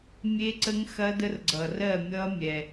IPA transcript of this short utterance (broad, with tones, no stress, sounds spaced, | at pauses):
mʲ e˦˥ ǀ ə˦˥ ŋ x ɐ˦˥ d ə˦˥ r ɡ͡ǀ ʌ˩ r ɜ˥˨ mʲ ʌ˦˥ mʲ ɛ˩